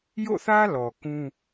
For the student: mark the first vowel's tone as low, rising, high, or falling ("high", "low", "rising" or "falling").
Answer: falling